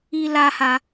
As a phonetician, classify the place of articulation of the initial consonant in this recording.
alveolar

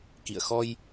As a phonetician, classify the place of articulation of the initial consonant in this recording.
velar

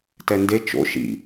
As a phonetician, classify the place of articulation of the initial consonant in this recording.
alveolar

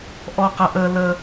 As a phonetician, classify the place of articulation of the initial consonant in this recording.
glottal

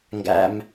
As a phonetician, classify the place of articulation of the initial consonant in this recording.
velar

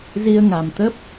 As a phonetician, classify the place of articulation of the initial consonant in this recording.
alveolar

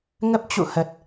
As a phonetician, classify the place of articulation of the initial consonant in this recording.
velar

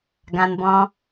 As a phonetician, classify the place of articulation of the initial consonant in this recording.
velar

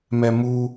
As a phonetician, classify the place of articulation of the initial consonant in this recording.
labial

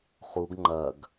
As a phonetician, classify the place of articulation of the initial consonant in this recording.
uvular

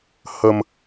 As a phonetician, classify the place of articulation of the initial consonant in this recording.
glottal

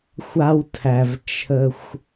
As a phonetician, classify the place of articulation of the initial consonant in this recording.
velar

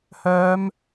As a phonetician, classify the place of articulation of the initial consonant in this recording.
glottal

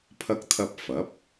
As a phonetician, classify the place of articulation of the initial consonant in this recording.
labial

